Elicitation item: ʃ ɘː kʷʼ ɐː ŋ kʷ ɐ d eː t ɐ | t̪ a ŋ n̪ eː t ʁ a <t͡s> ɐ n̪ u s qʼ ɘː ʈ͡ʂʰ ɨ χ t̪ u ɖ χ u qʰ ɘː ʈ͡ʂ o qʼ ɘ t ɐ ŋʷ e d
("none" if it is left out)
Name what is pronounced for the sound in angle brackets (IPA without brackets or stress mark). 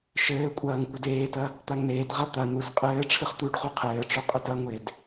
t̪